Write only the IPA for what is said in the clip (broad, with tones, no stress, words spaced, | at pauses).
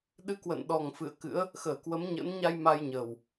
ɗɨ˧kwə̰ː˧˨n ɗɔ˨˩ŋfɨ̰˧˨ə̯ kɨ̰˧˥ə̯ | xəː˧˩kwə˨˦mɲə̰ː˧˥n ɲa˧j ma˧jɲəː˨˩w